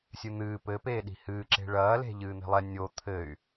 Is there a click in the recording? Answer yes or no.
yes